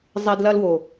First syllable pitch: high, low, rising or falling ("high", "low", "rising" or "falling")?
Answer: low